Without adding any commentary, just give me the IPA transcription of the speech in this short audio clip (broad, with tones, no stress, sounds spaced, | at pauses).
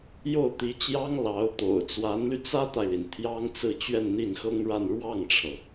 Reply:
j o˥˩ ʊ̯ t̪ i˧˥ t͡ɕ j ɑ˥ ŋ l ɑ˧˥ ʊ̯ t̪ o̰˨˩ ʊ̯ t͡s w a˧˥ n l y˧ t͡s ä˥ t̪ a˨ ɪ̯ l i˩ n t̪ʰ j ɑ˥ ŋ t͡s ɹ̩˥˧ t͡ɕ ɥ ɛ˥˧ n n̪ i˥˩ n x ɤ˥ ŋ ɻ a˥˧ n ɻ w ɑ˥˩ ŋ ʈ͡ʂʰ ɤ˩